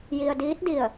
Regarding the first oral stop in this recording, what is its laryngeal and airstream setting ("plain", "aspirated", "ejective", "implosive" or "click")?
plain